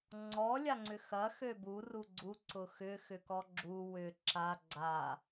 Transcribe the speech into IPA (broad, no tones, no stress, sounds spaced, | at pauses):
ŋ͡ǀ ɔ lʲ a ŋ͡ǀ ʏ x ɐ x ø b u r u ɡ͡ǀ u ǀ ʊ x ʏ x ʏ k ɔ ɡ͡ǁ u w ʏ ǁ a ɡ͡ǀ a